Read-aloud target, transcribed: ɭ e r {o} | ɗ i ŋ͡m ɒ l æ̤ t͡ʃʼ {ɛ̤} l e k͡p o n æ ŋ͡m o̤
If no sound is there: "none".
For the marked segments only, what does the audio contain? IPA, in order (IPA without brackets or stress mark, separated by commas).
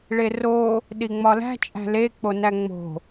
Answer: o, æ̤